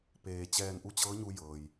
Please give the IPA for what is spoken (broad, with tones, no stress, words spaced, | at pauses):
peː˩t͡ɕɛː˧˩n ʔu˧˥t͡ɕɤː˧˥ɲu˧ jɤː˩j